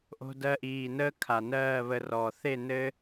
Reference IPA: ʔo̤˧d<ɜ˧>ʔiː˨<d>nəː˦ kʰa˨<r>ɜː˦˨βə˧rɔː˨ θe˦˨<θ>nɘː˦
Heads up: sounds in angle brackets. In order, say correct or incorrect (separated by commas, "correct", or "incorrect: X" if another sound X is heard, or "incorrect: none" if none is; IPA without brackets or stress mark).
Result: correct, incorrect: none, incorrect: n, incorrect: none